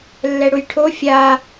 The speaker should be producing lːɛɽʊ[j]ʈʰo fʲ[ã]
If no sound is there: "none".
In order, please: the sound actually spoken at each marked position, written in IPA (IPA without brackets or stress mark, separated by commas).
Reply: j, a